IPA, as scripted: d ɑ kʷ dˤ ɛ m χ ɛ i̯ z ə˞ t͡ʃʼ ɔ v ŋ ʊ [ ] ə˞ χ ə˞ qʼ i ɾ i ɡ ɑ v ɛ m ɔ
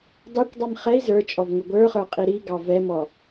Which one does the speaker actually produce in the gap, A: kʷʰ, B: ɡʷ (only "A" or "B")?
B